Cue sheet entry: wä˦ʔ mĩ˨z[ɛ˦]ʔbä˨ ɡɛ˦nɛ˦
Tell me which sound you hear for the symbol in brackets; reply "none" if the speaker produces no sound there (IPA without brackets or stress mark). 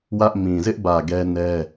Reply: ɪ˦